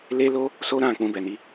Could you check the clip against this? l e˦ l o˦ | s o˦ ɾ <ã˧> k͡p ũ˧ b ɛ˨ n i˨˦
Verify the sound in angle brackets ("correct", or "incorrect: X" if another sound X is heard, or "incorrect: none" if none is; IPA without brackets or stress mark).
correct